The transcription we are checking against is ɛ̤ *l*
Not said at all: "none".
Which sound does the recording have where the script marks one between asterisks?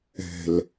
l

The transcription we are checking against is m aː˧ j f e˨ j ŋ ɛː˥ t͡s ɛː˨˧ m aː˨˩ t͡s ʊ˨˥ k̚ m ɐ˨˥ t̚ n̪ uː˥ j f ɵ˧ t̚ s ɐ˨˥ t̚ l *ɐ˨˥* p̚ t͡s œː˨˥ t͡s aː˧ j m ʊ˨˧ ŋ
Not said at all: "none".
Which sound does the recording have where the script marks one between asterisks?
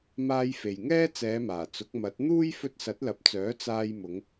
ɐ˨˥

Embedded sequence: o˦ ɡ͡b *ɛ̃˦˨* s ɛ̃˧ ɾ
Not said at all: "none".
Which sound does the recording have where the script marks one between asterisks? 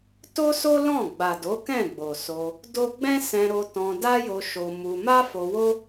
ɛ̃˦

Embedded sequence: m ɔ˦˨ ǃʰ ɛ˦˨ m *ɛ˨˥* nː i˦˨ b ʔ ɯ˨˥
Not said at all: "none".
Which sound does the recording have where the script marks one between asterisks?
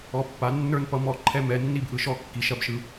ɛ˨˥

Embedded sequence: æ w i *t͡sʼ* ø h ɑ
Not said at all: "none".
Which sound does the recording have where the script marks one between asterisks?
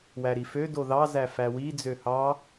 d͡z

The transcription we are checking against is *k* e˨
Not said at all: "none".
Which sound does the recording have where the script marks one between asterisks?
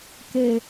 k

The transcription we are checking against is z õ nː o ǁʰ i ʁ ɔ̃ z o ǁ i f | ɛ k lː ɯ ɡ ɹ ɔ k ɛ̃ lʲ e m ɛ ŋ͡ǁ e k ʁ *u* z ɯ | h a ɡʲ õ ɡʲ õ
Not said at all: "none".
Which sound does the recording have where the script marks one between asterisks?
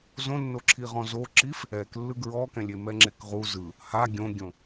u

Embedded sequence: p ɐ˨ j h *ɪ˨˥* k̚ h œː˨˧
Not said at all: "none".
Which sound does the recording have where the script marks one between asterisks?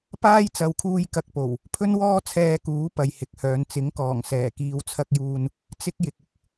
ɪ˨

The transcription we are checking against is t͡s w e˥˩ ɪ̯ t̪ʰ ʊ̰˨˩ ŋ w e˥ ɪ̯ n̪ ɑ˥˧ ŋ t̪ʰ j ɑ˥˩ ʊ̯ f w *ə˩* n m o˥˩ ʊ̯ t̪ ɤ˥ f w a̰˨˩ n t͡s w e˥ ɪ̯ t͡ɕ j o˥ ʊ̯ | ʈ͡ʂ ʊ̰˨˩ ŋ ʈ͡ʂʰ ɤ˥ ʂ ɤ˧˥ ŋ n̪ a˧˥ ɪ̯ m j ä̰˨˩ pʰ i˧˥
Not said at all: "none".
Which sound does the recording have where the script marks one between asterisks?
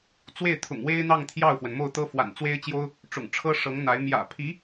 ə˩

